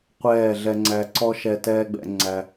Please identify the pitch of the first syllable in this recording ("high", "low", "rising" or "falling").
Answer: falling